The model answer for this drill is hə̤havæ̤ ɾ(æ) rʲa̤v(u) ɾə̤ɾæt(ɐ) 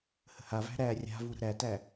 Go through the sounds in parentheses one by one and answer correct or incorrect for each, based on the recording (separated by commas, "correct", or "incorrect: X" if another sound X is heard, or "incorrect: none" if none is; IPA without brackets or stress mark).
correct, correct, incorrect: æ